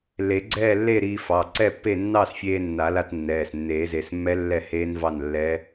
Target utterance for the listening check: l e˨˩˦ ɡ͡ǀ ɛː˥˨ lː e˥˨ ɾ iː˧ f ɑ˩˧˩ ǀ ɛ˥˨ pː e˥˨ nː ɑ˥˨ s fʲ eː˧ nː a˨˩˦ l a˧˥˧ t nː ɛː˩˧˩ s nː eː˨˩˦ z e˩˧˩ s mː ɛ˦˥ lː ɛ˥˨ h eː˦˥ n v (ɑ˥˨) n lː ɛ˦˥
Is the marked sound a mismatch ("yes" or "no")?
no